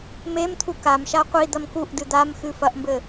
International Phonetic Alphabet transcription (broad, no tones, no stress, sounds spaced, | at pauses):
m e m t̪ʰ u k a m ʃ a qʷ i d̪ ɐ m k u ʔ d ɨ d̪ a m x ɨ f ɐ ʔ m b ɘ